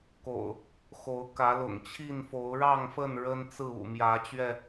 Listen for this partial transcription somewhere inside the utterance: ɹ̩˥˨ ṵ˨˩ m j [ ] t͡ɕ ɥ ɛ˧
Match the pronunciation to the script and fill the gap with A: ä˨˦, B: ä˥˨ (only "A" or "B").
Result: A